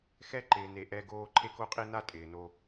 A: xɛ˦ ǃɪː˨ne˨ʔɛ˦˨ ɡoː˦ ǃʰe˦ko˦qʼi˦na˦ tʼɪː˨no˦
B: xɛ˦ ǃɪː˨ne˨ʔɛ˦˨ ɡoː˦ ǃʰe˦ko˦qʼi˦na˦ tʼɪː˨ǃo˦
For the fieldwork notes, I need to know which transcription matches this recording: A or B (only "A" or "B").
A